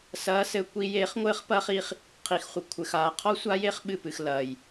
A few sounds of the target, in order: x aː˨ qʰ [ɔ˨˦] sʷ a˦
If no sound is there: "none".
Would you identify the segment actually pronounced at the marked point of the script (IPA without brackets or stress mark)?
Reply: ɔ˦